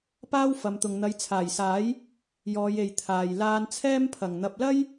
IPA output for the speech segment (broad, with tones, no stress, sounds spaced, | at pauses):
p aː˥ w f ɐ˨˧ m t̪ ʊ˨ ŋ n̪ ɐ˨˧ j t͡sʰ aː˨˩ j s aː˨˥ j | j ɔː˨˧ j e˨ j t̪ʰ aː˨ j l aː˧ n t͡sʰ ɛː˥ m pʰ ɐ˨˩ ŋ n̪ ɐ˨ p̚ l ɐ˥ j